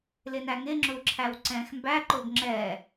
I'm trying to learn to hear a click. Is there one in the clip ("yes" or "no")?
yes